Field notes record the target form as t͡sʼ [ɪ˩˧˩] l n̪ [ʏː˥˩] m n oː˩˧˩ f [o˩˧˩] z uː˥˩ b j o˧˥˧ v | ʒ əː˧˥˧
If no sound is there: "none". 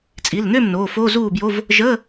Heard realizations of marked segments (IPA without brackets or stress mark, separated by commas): i˩˧˩, ʏː˥˩, o˧˥˧